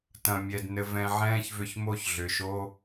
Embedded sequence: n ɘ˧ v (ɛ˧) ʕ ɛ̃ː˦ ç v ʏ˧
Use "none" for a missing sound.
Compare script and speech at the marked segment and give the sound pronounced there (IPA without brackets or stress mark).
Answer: ɛ̃˧